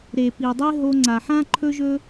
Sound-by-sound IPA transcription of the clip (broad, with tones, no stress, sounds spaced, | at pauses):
ɾ e˨ p i˨ dˤ e˦ ɦ o˧ ŋ͡ǀ a˨ ħ ã˦ ǃʰ ɵ˦ ʒ ɵ˦